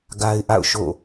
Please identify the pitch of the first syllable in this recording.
high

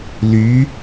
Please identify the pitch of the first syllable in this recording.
rising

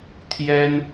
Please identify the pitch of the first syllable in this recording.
high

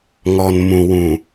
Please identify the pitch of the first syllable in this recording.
low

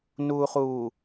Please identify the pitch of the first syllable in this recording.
low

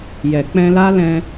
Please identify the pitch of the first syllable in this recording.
low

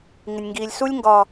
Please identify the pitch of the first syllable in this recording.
low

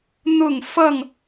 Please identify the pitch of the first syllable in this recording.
falling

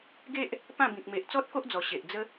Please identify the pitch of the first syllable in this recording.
high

